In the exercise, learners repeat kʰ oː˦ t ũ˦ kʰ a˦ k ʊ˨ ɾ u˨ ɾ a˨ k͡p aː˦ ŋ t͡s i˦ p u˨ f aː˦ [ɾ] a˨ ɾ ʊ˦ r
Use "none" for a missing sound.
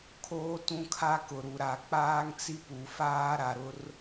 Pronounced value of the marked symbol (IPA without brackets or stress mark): ɾ